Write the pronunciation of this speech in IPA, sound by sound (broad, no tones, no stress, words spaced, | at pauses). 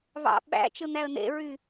βɑ̰ɓæ̰ t͡ʃɯn̪æə̯n̪ḛɹy